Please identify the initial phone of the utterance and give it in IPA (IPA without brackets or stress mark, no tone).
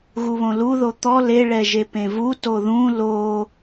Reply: ɣ